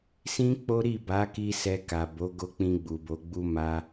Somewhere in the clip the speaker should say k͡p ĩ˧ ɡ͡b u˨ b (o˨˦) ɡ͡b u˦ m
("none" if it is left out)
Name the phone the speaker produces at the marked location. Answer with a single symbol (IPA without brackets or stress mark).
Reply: o˨˦